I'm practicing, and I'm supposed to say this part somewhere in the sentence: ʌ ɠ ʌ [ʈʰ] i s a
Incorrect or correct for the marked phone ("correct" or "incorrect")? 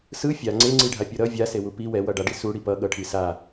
correct